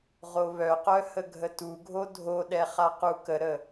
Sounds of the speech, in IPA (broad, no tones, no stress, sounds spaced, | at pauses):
ʁ o β œ q œ h ə ɡʱ ə t u ɡʱ o dʱ o ɗ ɛ χ a q u k ə ɾ ə